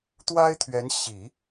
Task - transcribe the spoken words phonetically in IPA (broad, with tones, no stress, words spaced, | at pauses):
t̪wa˥ɪ̯t̪ʰɥɛ˧˥nɕi˨˩˦